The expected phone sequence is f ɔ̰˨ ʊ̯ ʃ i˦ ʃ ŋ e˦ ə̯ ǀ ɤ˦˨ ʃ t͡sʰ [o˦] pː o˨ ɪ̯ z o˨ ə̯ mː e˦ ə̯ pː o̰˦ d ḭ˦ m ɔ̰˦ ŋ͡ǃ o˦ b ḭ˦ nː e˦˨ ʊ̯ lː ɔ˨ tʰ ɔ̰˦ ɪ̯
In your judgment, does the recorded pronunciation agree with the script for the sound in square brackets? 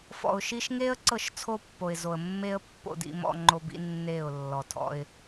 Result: yes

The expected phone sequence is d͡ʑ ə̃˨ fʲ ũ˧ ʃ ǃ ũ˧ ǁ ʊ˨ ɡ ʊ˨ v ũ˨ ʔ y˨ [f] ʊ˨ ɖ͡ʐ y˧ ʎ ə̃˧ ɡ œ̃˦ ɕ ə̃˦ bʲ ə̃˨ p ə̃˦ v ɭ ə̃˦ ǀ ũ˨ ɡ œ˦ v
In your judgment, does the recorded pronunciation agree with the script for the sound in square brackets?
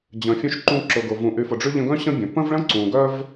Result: yes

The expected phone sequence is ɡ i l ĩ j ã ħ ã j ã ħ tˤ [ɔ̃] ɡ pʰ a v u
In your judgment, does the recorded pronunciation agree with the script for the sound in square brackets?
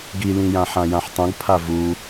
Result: no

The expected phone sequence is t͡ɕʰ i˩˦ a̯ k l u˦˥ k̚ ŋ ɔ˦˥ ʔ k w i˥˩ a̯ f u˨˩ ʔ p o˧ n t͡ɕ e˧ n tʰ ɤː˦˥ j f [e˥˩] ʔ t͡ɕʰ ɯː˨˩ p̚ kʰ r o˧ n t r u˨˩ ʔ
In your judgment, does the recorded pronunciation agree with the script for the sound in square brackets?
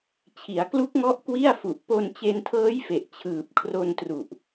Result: no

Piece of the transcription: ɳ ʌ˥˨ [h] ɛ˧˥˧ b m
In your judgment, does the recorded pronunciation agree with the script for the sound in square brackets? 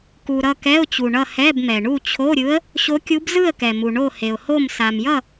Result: yes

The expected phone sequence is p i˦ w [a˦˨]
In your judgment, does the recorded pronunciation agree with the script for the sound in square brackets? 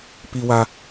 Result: no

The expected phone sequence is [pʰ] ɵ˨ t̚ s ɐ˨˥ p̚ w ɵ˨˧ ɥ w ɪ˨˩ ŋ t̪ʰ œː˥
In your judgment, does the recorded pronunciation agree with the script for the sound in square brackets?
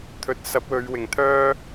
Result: no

